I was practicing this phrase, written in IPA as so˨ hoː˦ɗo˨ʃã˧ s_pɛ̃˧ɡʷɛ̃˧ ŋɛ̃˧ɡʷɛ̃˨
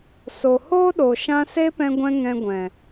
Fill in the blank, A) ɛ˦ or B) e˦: B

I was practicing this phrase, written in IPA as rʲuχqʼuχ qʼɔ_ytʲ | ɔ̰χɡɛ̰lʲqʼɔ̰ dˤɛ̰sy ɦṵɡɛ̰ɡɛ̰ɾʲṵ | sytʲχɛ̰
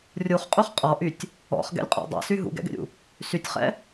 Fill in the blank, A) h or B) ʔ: B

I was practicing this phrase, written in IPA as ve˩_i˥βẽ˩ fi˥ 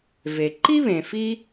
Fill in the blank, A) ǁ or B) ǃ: B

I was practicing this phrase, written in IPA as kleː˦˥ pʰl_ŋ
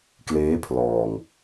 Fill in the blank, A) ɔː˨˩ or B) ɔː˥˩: A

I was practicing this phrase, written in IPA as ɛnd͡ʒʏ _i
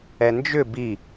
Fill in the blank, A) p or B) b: B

